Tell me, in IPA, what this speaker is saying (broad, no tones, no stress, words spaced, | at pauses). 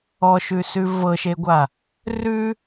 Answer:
ɔʃʉsʉ vɤʃeɡʷa | rʉ